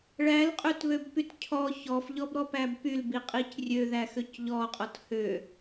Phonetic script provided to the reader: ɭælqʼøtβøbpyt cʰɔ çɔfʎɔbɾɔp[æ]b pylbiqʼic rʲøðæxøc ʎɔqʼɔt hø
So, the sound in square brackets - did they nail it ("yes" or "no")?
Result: yes